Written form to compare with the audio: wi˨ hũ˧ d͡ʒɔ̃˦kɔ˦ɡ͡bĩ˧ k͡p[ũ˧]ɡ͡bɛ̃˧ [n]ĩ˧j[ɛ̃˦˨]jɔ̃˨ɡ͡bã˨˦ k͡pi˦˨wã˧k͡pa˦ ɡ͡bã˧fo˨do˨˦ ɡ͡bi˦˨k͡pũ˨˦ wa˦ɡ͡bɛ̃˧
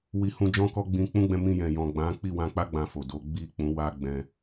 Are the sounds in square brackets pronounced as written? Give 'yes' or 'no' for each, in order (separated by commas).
no, no, no